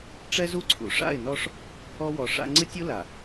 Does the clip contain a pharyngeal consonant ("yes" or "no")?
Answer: no